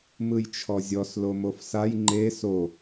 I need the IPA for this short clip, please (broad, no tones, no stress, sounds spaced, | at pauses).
m ɯ j t͡ʃʰ ɔ zʲ ɔ s l o m o f s a j ŋ͡ǃ e s o